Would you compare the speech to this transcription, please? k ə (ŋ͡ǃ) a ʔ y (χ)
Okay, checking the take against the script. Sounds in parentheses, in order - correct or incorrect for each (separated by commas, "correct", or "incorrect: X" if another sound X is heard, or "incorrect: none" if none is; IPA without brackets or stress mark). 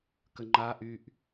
correct, incorrect: ʔ